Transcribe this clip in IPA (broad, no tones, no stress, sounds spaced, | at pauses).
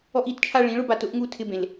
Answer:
ɔ ʔ i t t͡ʃʰ a ɭ ĩ ɭ ʊ b a t ʊ ʔ ŋ u tʰ ɪ b ẽ l